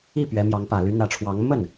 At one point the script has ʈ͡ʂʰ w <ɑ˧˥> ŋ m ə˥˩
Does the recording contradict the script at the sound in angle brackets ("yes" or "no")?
no